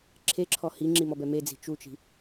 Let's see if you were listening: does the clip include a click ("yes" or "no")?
yes